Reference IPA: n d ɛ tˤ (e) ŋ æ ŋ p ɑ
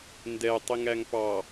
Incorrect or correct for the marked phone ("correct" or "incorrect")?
incorrect